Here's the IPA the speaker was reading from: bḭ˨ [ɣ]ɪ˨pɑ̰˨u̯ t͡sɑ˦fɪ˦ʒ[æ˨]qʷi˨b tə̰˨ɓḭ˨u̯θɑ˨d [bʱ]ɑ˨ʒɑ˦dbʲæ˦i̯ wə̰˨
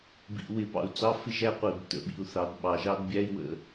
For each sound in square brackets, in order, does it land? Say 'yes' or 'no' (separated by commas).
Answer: no, no, no